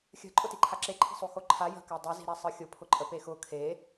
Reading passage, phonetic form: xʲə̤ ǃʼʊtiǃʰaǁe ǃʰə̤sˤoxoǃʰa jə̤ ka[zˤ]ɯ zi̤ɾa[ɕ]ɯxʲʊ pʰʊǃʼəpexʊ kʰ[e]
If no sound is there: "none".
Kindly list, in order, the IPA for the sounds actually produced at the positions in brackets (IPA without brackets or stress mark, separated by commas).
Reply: dˤ, sˤ, e